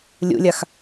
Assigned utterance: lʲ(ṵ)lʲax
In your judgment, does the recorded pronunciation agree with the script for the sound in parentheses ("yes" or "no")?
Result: yes